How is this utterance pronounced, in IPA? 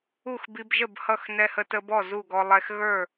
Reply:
u˥˩ x b i˧ b ʒ ə˥˩ b h ʌ˥˩ x n ɛ˧ h ə˧ t ə˧ b ɔ˥˩ z u˥˩ ɡ ɔ˧ lˠ ɛ˧ x ɣ ə˞˥˩

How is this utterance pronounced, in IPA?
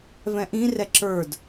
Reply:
v ɛ̃ ʔ ĩ r ɛ ǁ ə˞ d

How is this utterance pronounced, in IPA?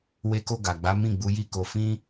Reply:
w e˧ k o˧ ɡ a˨ ɡ͡b a˨˦ m ĩ˦˨ ɡ͡b u˨˦ j i˦˨ k o˧ f ĩ˦

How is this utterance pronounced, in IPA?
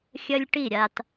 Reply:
xʲ ɐ˦ lʲ ʈ i˦˨ ɾʲ a˨ t

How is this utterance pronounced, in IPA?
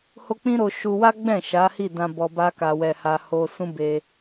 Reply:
h o˦ k͡p ĩ˦ ɾ o˧ ʃ u˧ w a˦ ɡ͡b ɛ̃˦˨ ʃ a˨˦ h i˦˨ d ã˧ b ɔ˧ b a˦ k a˧ w ɛ˧ h a˧ h o˧ s ũ˦ b e˧

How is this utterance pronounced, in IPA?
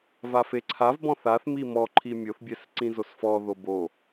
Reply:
v a f e ǀʰ a v b ɔ̃ θ a θ m i m ɔ ǃʰ i mʲ o θ bʲ ɛ s ǀ ĩ z o s f ɔ ð o b o

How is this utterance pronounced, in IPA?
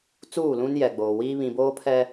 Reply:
t͡s uː˦˨ l ũ˦ n j ɛ˨ ɡ͡b oː˨ w iː˦ β ĩ˨ b oː˦ pʰ ɛ˦

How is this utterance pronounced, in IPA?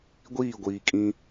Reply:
ɡʷ iː˦˨ ɡʷ iː˨ kʼ ĩ˦

